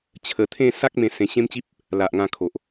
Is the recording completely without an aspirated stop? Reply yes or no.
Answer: no